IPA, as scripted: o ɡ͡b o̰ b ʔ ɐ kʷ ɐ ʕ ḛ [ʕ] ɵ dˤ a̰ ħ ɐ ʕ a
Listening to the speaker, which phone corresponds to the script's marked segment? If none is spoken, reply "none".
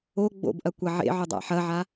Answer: ʕ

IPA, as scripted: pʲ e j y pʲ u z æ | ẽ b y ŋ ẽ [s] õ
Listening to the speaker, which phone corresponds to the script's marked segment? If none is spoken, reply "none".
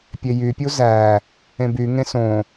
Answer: s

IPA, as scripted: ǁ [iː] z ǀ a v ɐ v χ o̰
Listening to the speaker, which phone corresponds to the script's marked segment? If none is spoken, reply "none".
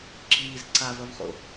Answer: iː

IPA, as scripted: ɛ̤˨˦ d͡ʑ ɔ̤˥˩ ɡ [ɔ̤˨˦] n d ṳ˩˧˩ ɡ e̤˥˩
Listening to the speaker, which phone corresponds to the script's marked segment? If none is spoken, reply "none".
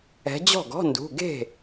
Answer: ɔ̤˧˥˧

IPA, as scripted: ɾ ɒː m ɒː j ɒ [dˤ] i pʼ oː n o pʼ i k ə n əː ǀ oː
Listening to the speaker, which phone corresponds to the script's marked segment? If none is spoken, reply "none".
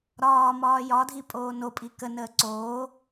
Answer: dʱ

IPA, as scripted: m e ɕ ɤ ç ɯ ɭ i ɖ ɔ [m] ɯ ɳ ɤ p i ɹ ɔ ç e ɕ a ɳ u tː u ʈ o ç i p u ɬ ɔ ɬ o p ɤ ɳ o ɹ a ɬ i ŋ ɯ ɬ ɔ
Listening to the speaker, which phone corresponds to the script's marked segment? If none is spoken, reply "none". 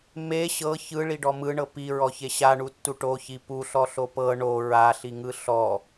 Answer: m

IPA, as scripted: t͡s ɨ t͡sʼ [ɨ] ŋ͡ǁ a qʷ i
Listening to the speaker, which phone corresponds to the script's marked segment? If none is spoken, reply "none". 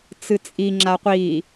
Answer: i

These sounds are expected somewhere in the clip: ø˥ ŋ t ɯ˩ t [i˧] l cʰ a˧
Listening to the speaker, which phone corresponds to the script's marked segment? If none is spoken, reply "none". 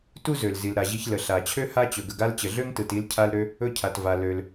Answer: i˧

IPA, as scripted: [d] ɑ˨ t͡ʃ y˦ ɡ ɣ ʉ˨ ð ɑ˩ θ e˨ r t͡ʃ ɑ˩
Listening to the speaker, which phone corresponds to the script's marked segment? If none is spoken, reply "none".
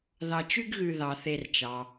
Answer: ð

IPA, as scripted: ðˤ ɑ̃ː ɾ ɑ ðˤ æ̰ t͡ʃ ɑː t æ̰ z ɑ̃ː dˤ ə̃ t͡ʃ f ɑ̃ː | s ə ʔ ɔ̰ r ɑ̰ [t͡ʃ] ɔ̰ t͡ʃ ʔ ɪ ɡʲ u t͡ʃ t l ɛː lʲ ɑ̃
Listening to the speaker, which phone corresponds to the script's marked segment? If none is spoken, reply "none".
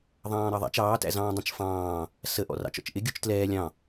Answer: t͡ʃ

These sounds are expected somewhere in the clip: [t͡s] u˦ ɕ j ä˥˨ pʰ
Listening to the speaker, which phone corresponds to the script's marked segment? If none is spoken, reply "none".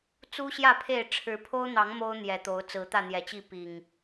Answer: t͡s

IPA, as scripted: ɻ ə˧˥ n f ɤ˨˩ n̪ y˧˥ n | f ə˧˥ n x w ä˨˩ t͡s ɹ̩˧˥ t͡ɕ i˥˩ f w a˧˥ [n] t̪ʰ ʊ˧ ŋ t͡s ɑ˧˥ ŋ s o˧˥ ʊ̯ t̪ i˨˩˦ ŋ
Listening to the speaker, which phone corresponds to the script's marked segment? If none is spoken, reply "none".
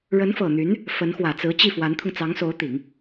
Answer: n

